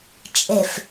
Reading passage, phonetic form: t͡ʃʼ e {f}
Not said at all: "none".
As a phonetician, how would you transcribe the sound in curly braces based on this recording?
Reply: f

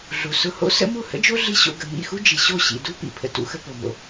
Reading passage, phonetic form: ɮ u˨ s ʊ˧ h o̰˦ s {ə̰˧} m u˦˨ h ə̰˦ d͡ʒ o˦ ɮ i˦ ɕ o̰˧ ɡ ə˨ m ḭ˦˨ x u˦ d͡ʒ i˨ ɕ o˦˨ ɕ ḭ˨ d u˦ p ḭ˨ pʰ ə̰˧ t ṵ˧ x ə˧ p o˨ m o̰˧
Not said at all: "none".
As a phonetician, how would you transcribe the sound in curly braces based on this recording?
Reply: ə̰˦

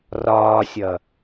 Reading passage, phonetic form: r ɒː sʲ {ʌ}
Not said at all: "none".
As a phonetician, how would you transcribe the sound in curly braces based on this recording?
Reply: ʌ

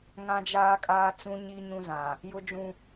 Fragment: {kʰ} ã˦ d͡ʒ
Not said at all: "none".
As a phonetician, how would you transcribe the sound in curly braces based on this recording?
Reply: ŋ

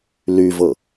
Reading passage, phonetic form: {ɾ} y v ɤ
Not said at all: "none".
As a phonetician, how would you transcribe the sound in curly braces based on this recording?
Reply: l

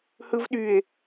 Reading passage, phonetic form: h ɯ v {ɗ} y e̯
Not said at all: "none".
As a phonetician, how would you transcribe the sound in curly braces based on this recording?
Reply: ɗ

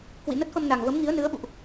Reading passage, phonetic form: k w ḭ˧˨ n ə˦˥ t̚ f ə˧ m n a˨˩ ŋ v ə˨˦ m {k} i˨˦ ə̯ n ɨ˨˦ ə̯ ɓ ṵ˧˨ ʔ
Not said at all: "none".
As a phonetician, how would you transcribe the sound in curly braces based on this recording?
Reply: ŋ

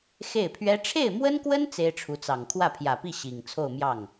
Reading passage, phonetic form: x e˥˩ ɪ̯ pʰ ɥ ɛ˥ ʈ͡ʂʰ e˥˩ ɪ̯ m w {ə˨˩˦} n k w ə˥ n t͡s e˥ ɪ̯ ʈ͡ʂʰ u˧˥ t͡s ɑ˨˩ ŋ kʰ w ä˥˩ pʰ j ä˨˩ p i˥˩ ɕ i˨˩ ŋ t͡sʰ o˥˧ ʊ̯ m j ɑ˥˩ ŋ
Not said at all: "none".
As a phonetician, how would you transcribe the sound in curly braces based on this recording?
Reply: ə˥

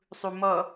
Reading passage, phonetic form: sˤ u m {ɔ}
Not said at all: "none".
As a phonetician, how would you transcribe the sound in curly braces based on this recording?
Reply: ɔ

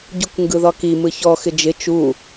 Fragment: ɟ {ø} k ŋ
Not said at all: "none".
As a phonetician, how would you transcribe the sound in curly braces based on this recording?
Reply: u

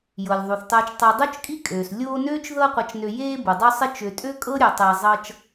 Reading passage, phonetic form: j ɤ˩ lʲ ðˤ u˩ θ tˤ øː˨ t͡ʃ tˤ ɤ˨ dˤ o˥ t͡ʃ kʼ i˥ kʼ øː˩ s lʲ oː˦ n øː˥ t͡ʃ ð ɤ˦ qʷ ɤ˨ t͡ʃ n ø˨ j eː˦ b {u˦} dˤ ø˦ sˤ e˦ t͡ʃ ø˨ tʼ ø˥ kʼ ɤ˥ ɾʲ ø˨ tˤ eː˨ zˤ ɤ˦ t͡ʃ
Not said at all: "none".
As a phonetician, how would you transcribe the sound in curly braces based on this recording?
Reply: u˩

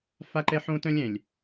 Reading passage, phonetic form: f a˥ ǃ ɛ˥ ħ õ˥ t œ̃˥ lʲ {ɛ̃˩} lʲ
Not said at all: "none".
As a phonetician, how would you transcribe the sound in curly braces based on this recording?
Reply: ɛ̃˩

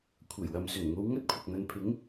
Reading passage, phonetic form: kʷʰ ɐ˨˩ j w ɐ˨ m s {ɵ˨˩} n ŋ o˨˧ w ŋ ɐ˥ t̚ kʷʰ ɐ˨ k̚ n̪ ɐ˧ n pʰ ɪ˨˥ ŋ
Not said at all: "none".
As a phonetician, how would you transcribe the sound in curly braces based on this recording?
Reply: ɵ˨˩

